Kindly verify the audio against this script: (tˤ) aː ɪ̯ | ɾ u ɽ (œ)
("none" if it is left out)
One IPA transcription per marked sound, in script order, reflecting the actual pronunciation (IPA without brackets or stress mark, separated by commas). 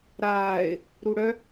ɾ, œ